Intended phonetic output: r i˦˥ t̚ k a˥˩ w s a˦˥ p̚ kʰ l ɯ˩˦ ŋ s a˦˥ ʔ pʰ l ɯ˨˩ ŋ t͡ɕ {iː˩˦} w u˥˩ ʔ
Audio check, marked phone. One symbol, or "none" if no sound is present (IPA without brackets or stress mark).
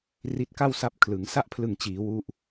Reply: iː˩˦